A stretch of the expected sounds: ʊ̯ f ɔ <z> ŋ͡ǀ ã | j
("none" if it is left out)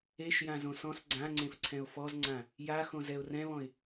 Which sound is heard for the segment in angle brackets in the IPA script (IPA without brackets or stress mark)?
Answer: z